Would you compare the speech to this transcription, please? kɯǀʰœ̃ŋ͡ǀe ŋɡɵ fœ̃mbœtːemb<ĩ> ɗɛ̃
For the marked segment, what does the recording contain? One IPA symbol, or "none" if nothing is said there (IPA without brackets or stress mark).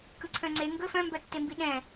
i